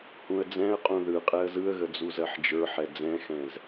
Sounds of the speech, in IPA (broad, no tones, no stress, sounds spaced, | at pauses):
h ũ ə̯ d͡z ɛ̃ ə̯ qʼ ũ ð ɯ qʼ ɛ ə̯ z ɯ ə̯ ɣ ə d͡z u z ɜ ħ d͡ʒ ə˞ ħ ɛ d͡z ɛ̃ x ɛ̃ z